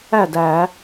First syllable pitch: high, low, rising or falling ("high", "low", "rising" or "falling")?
falling